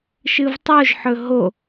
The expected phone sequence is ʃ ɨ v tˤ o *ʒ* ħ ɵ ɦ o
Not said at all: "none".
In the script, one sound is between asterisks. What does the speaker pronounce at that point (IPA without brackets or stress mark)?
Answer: ʒ